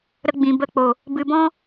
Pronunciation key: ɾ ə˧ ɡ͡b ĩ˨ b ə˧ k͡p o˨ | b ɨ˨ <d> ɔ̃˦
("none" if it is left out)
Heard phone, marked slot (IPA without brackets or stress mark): b